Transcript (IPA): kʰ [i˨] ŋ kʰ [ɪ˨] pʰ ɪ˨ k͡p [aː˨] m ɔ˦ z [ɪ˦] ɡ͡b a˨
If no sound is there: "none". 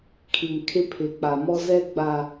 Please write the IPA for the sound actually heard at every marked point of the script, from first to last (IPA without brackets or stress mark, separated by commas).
i˨, ɪ˦, a˨, ɛ˦